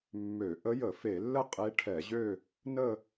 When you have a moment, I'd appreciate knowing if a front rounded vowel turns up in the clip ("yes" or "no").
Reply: yes